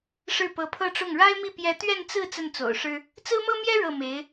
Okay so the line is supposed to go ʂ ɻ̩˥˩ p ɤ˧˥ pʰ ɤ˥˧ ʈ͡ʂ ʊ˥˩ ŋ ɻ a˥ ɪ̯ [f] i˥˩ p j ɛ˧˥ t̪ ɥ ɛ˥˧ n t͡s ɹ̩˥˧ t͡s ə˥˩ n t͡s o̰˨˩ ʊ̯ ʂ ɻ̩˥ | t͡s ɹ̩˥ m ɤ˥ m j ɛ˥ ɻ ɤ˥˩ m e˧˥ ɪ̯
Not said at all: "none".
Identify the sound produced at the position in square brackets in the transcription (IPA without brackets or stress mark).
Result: m